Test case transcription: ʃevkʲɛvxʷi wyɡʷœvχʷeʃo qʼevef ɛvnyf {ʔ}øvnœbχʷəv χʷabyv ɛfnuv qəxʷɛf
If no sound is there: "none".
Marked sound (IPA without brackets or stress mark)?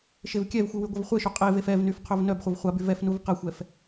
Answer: qʰ